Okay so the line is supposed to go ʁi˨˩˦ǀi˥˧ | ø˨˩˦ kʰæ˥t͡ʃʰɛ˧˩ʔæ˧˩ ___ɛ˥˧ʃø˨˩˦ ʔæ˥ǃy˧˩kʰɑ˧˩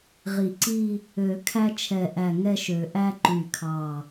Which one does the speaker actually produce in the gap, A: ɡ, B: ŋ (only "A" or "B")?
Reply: B